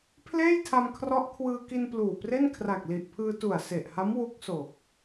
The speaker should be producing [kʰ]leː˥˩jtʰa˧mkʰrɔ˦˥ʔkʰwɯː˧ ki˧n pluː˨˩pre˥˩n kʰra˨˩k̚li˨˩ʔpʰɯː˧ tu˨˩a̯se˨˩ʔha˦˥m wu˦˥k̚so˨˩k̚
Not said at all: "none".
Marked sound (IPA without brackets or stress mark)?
pʰ